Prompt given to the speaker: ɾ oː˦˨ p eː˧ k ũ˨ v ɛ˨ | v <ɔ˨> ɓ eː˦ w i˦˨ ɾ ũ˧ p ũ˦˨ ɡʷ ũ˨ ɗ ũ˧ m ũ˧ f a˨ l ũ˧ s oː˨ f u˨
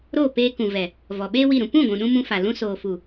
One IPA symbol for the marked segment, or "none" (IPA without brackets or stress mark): ɔ˨